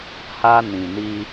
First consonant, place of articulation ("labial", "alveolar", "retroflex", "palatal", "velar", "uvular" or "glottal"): glottal